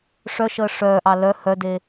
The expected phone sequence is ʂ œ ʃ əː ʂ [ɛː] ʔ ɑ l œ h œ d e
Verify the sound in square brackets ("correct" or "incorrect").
incorrect